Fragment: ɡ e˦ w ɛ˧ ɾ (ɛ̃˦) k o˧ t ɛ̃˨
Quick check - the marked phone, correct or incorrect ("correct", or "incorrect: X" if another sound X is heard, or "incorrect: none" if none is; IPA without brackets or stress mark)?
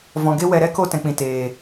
incorrect: ɛ˦